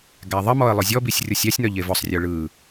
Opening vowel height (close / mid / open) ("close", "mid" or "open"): open